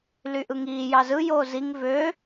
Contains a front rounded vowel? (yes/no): yes